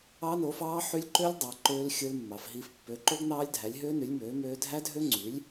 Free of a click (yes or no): no